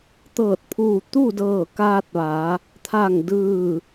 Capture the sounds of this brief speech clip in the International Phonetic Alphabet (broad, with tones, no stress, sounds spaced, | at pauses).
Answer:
t̪ ɤː˧˩ t̚ pʰ uː˧˩ t̪ u˥˨ d ɤː˧˩ k aː˧ t̚ ʋ a˩˧ | t̪ʰ aː˧˩ ŋ d ɯː˧˩